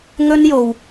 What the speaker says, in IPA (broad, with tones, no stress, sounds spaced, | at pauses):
ŋ ɵ˥ n j o˧ w